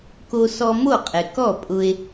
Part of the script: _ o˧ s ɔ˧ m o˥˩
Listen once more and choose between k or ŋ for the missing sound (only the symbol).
k